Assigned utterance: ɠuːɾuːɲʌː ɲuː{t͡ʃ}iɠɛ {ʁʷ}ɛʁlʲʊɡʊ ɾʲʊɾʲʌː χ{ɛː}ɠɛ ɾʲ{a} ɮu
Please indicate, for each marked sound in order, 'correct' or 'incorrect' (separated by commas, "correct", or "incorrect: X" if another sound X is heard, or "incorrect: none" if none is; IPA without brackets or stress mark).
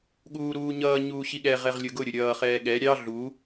incorrect: ɕ, incorrect: ʁ, correct, incorrect: ɑ